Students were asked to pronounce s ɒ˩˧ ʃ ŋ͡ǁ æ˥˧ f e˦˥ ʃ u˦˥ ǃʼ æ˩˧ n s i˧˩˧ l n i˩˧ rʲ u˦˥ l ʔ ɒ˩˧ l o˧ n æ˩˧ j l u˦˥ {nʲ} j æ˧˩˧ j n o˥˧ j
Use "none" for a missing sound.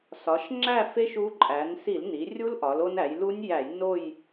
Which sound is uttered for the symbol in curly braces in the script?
nʲ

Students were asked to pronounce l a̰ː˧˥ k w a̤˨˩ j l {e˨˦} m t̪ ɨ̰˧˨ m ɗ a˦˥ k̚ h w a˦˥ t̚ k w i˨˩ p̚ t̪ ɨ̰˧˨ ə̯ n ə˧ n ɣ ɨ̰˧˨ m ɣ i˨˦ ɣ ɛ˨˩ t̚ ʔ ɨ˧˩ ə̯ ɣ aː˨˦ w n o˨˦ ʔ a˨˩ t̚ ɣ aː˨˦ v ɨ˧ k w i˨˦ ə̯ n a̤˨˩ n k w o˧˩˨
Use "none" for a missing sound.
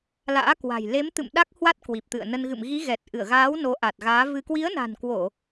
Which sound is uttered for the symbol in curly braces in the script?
e˨˦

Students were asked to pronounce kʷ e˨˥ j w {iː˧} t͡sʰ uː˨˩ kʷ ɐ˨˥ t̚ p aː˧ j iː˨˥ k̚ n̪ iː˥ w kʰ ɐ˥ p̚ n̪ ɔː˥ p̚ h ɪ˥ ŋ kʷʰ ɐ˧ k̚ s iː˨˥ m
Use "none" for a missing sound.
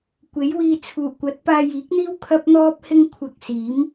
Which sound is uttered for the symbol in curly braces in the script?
iː˧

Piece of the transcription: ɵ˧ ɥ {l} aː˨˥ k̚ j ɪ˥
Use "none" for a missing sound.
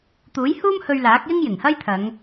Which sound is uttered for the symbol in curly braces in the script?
l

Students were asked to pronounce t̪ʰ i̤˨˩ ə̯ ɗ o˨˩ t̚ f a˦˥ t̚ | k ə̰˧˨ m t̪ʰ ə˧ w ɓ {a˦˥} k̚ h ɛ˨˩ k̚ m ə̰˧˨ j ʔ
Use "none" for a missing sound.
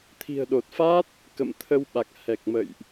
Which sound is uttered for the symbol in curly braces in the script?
a˨˩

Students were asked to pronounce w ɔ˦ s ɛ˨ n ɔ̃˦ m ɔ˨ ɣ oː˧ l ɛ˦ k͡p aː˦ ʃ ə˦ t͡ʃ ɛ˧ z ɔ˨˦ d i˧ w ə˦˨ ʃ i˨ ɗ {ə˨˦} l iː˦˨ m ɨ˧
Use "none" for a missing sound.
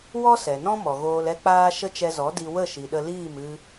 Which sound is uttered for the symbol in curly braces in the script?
ə˧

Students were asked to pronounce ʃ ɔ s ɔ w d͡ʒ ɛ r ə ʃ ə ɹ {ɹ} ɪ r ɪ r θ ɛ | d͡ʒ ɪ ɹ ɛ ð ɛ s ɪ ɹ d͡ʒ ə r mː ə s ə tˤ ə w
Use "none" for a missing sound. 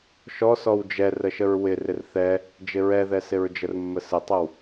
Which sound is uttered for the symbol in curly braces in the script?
w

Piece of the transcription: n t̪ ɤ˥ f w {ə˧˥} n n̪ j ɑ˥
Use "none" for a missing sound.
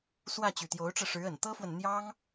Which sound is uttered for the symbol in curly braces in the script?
ə˨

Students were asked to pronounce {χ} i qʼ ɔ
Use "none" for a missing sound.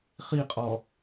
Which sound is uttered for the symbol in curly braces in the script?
χ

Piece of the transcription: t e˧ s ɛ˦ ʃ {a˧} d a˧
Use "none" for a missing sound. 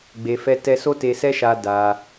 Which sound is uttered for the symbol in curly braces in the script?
a˧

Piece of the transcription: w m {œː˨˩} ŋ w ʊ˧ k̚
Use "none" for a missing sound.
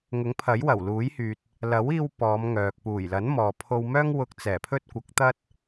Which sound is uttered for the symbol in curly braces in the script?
œː˥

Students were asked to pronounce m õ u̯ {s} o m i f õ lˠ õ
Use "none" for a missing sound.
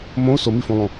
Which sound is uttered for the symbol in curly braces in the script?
s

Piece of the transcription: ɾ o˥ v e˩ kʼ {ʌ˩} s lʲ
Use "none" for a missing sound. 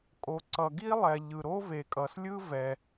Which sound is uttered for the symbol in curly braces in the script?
ʌ˩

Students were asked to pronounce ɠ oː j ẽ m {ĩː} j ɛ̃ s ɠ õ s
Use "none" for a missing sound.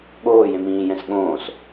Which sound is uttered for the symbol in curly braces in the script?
ĩː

